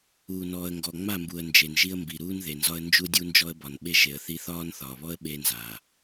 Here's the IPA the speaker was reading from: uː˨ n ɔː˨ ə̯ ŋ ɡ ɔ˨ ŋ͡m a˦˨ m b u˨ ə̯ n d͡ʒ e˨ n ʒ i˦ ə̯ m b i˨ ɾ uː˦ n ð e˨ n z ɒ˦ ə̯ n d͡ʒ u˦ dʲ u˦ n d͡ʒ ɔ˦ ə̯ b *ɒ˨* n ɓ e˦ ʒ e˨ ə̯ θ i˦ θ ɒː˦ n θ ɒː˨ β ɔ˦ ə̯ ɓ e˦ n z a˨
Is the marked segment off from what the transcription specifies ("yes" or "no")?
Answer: no